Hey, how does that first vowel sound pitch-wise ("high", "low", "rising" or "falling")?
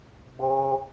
high